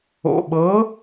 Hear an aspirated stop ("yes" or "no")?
no